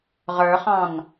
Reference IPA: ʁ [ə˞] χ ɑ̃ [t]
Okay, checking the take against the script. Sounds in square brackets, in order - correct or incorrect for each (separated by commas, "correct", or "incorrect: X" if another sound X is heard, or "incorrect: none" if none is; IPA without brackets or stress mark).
correct, incorrect: n